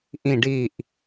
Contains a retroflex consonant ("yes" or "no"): yes